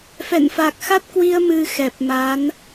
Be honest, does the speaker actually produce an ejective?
no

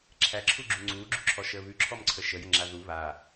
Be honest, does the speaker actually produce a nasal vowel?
no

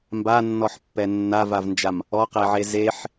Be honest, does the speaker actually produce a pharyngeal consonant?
yes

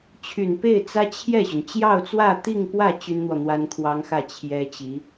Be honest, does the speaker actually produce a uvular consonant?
no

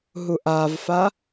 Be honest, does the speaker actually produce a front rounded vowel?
no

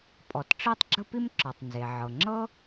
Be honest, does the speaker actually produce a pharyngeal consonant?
yes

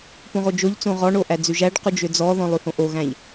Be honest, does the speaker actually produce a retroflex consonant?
yes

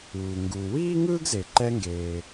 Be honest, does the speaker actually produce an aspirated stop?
no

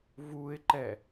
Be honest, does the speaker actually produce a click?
yes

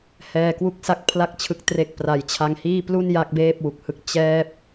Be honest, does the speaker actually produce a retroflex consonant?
no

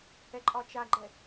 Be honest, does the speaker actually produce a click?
yes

